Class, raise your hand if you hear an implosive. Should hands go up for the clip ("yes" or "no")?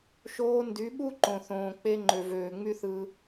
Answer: yes